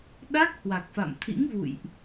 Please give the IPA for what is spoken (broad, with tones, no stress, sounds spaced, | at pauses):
ɗ a˦˥ k̚ h w a˨˩ k̚ f a̰˧˨ m t̪ʰ ḭ˧˥ ŋ v ṵ˧˨ j ʔ